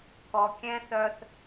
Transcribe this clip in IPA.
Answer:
k ɔ˨ kʲ ɛ̃˦ θ œ˦ θ

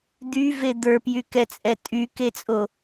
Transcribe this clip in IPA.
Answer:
d̪ y v e d̪ ə˞ p j y k ɛ t͡sʼ ɛ tʼ y k e t͡sʼ o

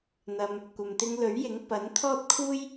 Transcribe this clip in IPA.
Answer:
n̪ ɐ˧ m | kʷ ɐ˨ m t̪ ɪ˧ ŋ l ɵ˨˥ ɥ j ɪ˨˥ ŋ p ɐ˨˥ n t̪ʰ ɔː˥ t̚ kʰ uː˥ j

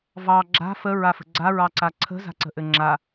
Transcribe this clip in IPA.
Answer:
v ɑ ɡ͡ǁ a̤ f ə ɹ a f ə̤ ɡ͡ǀ a ɹ ɑ ǀ a ǀʰ ə̤ z a̤ ǀ ə̤ ʔ ɘ ŋ͡ǁ a

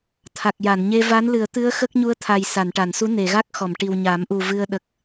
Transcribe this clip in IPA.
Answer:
t̪ʰ a˨˩ k̚ j a˨˩˨ n ɲ e˧ v a˧˥ n l ɨ˨˩˦ ə̯ t̪ ɨ˧˥ ə̯ x ə˦˥ k̚ ɲ u˧˥ ə̯ t̪ʰ a˨˩ j s a˨˩˨ n ʈ a˨˩˨ n s u˧˥ n e˨˩˨ ɣ a˦˥ k̚ x ɔ˨˩˨ m ʈ i˨˩ w ɲ a˨˩˦ m ʔ u˨˩ v ɨ˧ ə̯ ɗ ə˨˩ k̚

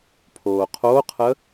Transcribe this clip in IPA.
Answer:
pʰ oː qʰ o qʰ ə

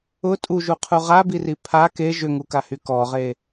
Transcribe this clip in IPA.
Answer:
ʊ tʼ u ʒ u qʰ u ʁ a b i r i pʰ a k e ʒ ʏ ŋ u k a h y k ɔ ʁ e

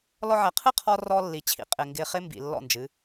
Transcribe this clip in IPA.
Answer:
l ɔ˧ ʕ ɛ˨ qʰ ɨ˦˨ qʰ ɔ˧ r ɔ˧ lː i˨ t͡ɕʰ ḭ˨ qʼ ɪ˨ ŋ ɡ ɪ˨ χ ɪ˧ m b ḭ˨ lː ɔ̰˦˨ n d͡ʒ ɨ˨˦

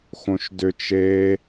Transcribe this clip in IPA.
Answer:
x õ ʃ d ʏ t͡ʃ e

